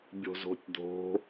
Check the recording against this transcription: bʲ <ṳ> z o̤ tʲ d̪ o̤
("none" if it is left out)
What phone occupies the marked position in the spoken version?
o̤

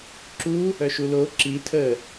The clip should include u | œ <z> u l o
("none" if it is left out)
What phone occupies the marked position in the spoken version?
ʃ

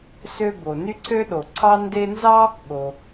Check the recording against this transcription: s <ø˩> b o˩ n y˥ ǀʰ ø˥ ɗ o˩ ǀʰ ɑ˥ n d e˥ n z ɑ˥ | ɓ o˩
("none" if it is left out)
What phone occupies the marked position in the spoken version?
ø˥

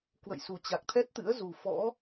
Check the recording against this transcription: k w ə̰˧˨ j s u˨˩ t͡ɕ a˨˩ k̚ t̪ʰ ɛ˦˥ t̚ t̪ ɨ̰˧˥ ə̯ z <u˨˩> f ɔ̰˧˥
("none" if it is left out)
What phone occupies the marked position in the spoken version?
u˨˩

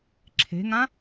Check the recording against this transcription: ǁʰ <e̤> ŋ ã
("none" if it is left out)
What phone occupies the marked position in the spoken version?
e̤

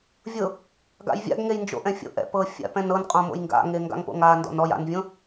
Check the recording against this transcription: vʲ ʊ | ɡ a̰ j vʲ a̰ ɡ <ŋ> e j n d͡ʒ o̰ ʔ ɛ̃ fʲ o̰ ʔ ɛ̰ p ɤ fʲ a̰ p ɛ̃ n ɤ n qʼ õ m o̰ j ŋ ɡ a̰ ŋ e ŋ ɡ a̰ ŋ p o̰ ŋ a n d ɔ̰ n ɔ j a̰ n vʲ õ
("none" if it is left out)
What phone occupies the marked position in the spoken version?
ŋ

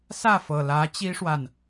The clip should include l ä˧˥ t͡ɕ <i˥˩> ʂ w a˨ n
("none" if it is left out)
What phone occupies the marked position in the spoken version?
i˥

